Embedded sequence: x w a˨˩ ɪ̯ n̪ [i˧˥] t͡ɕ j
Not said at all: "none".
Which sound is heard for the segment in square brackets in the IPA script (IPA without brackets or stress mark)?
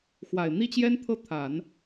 i˥